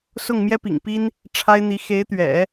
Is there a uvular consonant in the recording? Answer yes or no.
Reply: no